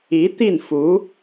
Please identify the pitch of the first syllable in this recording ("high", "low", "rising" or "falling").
rising